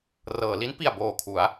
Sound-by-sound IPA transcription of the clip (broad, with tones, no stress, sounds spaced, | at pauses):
r ɤː˩˦ l i˦˥ n p i˨˩ a̯ b oː˨˩ kʰ u˩˦ a̯